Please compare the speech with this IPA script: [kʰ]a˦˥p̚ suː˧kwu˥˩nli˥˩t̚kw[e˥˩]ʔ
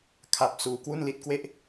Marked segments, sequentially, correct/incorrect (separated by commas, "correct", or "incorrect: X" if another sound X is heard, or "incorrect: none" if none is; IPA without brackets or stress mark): correct, correct